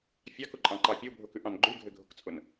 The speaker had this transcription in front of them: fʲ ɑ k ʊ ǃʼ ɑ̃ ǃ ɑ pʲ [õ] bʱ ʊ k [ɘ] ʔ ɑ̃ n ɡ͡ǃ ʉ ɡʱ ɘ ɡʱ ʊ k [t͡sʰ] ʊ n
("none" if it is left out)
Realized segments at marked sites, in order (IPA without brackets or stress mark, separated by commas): o, ʉ, t͡sʼ